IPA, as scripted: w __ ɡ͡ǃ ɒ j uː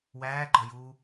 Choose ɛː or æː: æː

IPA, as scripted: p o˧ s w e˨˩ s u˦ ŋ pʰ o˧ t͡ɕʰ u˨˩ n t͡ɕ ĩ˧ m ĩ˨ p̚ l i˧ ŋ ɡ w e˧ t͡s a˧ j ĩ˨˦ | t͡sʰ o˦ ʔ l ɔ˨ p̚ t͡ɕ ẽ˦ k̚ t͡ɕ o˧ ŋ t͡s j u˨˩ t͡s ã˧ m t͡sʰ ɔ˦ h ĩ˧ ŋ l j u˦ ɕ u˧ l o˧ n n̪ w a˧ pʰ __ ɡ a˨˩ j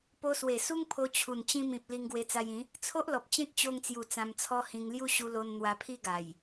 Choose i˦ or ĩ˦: i˦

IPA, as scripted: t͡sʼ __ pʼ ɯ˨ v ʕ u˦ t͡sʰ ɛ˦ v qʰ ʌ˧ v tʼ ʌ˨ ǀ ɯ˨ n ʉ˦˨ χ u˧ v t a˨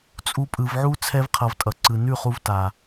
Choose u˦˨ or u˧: u˧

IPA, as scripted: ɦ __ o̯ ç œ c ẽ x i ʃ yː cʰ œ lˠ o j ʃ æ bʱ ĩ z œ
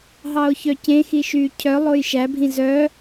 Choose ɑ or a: ɑ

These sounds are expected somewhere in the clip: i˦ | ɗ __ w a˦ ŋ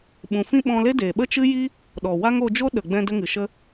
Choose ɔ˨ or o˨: ɔ˨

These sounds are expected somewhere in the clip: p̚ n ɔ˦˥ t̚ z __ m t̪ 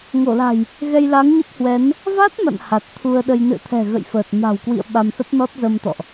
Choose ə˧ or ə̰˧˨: ə˧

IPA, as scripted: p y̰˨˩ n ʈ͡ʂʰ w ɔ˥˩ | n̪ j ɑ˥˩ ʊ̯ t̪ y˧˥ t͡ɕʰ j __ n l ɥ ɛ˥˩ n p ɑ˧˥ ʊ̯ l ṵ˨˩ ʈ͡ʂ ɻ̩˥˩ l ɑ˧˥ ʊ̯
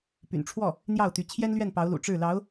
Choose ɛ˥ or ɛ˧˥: ɛ˥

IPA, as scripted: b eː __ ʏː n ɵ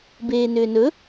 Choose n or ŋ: n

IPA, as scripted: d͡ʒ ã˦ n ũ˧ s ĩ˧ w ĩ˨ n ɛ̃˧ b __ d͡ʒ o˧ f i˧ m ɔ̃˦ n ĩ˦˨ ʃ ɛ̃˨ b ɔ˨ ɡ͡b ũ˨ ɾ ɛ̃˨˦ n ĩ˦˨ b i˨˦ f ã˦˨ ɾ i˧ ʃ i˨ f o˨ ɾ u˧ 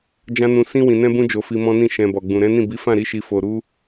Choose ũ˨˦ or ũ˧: ũ˧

